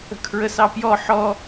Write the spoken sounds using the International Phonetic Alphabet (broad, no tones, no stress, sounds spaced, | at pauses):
ə̤ kʰ ɹ ə s ɑ p j ɔ ħ ɔ